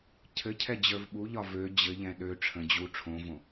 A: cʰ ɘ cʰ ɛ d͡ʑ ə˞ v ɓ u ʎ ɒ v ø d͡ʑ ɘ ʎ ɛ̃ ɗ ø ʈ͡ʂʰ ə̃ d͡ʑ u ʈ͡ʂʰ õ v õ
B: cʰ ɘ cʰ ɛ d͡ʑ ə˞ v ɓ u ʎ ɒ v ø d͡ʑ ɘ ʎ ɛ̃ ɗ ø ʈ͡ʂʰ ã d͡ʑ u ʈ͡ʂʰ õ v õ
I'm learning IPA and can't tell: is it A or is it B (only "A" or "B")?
A